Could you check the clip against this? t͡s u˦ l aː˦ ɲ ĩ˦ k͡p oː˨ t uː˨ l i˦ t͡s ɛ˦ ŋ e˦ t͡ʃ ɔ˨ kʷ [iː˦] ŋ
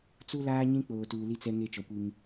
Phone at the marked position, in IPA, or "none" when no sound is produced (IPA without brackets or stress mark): i˦